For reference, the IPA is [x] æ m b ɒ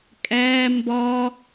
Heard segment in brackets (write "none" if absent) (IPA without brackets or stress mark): kʼ